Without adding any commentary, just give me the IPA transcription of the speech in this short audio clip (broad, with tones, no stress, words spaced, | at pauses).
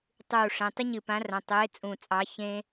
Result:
tˤuː˧˩ʂẽ˩˧˩ tˤɪ˥ɲɨ˧˩pã˨˥rɐ̃˩˧˩ tˤeː˨˥t͡sʼũ˧˩t͡sʼɑ˨˥ çẽ˥